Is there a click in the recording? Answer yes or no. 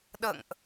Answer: no